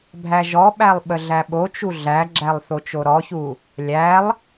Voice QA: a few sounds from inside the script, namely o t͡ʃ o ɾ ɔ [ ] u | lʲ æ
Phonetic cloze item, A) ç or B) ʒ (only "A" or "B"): A